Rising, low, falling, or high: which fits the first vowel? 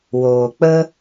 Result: low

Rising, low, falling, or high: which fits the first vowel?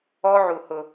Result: high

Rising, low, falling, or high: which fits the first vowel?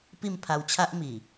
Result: falling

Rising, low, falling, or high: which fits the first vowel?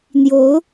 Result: rising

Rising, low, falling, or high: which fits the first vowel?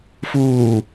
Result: low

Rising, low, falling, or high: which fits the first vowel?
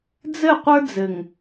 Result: falling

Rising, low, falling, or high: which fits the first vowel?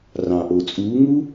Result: low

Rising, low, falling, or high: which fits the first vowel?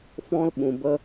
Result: high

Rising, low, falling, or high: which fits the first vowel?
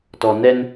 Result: low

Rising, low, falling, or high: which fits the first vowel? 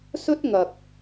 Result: high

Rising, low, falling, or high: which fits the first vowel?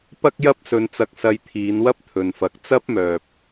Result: high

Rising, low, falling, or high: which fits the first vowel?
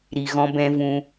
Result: low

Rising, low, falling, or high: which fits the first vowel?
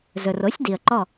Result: low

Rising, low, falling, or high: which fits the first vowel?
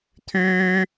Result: low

